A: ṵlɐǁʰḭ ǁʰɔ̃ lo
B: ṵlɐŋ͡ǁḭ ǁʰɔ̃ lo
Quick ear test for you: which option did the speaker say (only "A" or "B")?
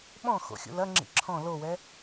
B